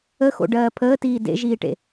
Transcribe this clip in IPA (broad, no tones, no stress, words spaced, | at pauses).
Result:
əxo̰ɖɜː pʰəːtiː dḛʒiːʈḛ